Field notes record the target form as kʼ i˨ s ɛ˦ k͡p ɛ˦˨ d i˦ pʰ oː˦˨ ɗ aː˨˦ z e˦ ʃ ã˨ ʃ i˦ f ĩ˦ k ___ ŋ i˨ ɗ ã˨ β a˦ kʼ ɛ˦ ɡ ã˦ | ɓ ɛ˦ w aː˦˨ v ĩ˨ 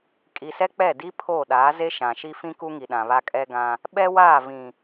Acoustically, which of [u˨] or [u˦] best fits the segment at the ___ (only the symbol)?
u˦